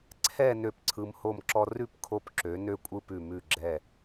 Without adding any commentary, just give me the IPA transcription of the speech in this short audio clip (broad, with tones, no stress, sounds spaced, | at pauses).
ǀʰ ɛ˥˧ n ø˥ p ǀʰ ɯ˧ m h o˥˧ m ǁ ɔ˥ r ʉ˥˧ p kʰ o˧ p ǁ ø˩˧ n ø˥˧ kʷʼ ɯ˥ p ʉ˧˩ m ʉ˧˩ ɡ͡ǁ ɛ˧˩